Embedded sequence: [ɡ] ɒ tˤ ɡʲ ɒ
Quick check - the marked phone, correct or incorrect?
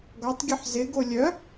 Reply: correct